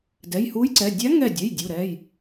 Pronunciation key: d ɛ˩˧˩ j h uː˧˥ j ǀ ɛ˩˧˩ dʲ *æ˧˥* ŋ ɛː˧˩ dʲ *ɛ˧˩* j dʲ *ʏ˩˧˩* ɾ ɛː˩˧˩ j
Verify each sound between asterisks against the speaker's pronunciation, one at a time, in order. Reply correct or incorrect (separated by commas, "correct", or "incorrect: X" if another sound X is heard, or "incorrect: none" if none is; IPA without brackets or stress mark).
correct, incorrect: ɛ˩˧˩, incorrect: u˩˧˩